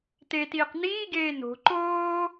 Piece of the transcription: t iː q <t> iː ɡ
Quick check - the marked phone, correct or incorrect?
incorrect: n̪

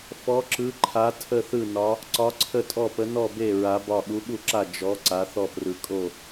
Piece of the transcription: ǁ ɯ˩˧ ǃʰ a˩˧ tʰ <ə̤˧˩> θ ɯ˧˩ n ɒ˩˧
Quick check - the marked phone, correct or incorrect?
incorrect: ə˧˩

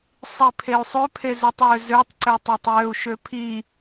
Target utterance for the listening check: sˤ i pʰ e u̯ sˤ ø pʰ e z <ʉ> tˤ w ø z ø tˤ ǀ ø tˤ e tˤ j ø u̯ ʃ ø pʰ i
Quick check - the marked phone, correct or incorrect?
incorrect: ø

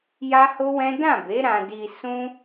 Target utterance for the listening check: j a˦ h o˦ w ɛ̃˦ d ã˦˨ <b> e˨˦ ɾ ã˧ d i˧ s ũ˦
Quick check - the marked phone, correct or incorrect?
correct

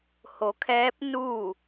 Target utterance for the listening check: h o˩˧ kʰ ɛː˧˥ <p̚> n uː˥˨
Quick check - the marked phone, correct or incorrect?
correct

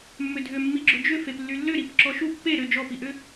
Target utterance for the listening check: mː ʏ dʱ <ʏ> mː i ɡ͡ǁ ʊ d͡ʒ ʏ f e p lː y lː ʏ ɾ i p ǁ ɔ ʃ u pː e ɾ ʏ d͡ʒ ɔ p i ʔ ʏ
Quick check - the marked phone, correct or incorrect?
correct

